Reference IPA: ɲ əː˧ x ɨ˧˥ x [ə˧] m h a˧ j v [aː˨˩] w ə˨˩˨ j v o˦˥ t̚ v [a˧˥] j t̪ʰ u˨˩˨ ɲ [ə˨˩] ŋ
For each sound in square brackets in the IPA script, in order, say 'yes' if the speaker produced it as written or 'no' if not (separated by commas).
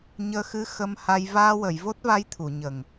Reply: yes, no, yes, yes